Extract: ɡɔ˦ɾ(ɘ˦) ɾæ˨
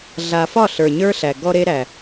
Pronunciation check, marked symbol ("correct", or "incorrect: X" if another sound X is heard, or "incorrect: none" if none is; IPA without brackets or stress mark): incorrect: e˦